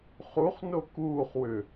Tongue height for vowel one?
high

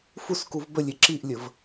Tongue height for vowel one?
high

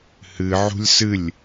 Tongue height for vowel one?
high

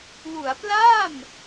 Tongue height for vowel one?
high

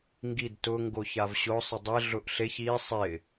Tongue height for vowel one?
high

